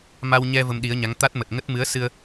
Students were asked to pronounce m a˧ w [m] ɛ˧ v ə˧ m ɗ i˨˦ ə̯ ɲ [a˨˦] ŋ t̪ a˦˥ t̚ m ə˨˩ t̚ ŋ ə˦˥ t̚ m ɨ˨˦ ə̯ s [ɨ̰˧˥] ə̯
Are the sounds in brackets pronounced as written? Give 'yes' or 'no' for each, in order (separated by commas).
no, yes, no